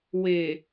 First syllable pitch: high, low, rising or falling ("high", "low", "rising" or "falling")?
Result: low